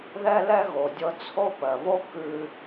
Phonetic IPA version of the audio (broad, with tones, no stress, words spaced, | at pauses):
ðɛ˥lɛ˥ɣo˩ dʲɤ˧t͡sʰo˥pɜ˩βo˥ kʉ˧